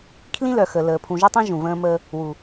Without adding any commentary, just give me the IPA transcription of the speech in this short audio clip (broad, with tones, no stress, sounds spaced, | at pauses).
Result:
kʰ l ĩ˦ l œ˨ x ə˨ l əː˨ pʰ ũ˨ ʒ y˦ tˤ ĩ˦ ʒ ũ˨ v ə̃ː˦ m əː˦ | w u˨